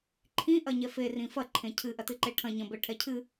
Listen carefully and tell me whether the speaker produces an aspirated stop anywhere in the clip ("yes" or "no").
yes